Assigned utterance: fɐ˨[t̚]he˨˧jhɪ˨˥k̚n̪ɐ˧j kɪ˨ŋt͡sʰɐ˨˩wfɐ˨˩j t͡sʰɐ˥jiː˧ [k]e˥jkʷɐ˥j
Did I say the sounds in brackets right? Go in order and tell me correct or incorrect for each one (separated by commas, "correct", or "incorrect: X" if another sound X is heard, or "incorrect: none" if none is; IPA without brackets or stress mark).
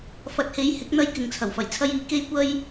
correct, correct